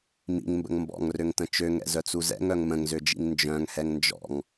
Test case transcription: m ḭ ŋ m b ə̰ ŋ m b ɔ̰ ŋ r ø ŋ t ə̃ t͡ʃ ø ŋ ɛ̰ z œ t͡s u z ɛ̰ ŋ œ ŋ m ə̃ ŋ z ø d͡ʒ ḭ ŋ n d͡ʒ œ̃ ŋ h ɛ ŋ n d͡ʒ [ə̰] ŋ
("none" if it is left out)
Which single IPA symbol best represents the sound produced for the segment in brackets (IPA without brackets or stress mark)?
ɔ̰